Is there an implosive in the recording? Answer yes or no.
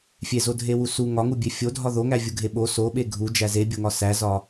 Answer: yes